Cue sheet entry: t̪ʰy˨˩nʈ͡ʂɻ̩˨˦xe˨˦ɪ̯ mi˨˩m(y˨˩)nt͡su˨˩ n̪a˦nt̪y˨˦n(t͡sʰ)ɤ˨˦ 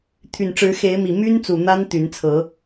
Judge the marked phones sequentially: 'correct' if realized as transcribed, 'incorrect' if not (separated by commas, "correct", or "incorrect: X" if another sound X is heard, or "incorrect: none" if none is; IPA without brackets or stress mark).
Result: incorrect: y˦, correct